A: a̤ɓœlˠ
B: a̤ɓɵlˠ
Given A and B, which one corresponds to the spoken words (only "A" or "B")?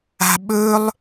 B